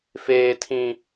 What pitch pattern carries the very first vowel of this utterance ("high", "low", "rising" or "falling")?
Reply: low